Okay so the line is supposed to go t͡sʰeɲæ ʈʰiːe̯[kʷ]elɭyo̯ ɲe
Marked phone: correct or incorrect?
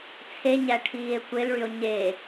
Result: correct